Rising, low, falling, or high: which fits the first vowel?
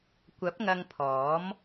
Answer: rising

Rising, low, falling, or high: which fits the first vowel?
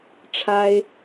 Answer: high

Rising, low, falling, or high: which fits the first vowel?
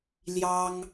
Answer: high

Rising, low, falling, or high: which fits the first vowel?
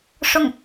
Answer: falling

